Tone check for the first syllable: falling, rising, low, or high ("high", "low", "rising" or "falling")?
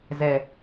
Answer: low